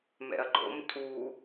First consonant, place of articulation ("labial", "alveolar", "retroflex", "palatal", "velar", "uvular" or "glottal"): labial